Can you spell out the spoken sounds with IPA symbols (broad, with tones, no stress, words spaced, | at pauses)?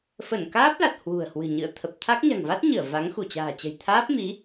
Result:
fə˧˩nkaː˦˥p̚la˨˩t̚ hwṳ˨˩ə̯hwɨ̤˨˩ɲɨ̰˧˨ə̯ t̪ʰə˨˩p̚t̪ʰa˦˥k̚ ɲa̤˨˩ŋva˦˥t̚ɲɨ˧˩ə̯ va˨˦ŋxu˧˩t͡ɕa̤ː˨˩t͡ɕə̤˨˩j t̪ʰaː˦˥p̚mi˨˦